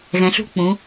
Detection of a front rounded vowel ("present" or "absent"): absent